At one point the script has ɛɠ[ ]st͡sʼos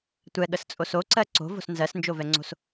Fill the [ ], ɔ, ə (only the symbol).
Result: ə